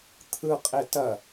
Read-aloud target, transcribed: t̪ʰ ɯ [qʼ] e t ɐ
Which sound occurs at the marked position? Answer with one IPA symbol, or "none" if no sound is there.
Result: qʼ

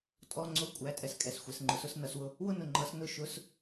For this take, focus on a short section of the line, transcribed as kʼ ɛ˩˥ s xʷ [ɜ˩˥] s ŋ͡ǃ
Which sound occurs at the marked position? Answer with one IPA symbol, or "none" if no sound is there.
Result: ɛ˩˥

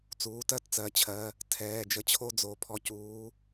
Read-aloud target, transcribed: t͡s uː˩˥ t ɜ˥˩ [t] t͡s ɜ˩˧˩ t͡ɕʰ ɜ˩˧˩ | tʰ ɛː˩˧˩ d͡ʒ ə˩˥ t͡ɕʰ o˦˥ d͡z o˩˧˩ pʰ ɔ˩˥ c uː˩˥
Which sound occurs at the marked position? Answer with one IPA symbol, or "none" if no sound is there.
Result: t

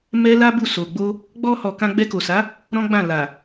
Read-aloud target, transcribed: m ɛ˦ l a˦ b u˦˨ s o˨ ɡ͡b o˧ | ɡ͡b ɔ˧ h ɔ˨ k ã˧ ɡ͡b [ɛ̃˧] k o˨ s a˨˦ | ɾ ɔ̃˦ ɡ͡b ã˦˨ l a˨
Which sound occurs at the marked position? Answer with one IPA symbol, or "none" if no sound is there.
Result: ɛ˧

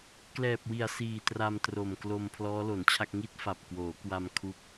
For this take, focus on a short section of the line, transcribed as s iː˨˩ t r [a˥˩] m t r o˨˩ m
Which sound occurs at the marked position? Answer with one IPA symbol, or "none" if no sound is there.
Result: a˧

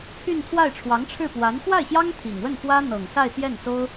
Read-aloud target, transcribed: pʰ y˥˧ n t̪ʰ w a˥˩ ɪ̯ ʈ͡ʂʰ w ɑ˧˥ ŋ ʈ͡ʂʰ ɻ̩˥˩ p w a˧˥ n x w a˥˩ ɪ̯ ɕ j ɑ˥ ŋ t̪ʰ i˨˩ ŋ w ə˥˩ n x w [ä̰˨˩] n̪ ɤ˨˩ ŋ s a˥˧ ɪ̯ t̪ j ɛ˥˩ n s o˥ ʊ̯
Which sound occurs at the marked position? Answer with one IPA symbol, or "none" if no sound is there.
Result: ä˥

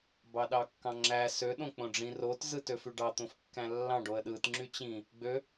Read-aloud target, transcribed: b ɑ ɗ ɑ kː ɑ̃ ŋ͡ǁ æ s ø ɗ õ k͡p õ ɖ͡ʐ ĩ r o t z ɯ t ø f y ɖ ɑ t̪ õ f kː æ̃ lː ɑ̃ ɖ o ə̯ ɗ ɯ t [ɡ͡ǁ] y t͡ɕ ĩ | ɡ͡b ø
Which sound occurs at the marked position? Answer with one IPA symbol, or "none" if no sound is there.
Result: ŋ͡ǁ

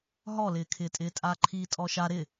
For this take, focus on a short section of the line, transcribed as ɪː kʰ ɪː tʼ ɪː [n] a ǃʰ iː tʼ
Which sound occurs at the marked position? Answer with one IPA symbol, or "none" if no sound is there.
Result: tʼ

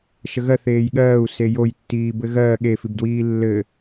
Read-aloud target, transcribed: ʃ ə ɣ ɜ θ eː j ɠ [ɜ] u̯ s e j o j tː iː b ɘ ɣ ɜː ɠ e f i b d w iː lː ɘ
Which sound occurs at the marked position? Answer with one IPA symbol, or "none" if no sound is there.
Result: ɜː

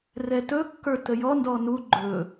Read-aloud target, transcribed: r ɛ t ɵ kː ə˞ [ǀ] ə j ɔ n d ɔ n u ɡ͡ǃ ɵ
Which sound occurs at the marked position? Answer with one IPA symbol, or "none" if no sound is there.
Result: t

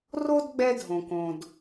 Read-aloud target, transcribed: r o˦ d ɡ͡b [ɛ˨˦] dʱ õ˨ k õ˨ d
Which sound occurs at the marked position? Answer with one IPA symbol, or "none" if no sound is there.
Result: ɛ˦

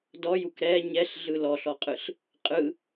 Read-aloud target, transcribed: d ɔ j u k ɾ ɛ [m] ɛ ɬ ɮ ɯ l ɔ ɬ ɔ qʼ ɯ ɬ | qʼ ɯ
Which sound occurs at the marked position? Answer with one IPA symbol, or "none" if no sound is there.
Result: ɲ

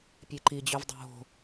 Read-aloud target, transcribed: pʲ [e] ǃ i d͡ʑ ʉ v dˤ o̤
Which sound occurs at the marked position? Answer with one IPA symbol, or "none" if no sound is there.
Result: e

